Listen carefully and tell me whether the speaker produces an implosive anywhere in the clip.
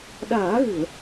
yes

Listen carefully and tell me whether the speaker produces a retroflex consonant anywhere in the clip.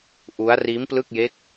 no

